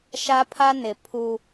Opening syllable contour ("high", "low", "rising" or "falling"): high